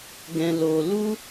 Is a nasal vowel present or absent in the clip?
present